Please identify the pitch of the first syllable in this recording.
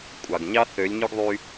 low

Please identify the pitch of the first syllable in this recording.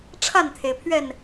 falling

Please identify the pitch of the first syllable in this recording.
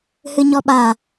low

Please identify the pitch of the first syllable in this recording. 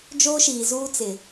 high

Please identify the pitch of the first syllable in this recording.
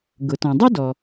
low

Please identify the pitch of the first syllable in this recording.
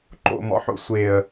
low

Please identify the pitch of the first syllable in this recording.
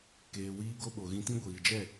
low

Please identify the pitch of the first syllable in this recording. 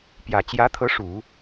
low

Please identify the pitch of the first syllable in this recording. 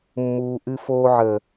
low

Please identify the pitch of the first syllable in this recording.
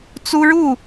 high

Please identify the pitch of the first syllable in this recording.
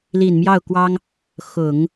low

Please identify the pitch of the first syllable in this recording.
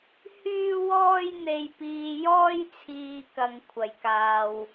high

